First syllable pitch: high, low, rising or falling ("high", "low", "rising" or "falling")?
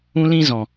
high